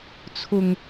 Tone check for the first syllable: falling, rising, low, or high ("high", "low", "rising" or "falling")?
low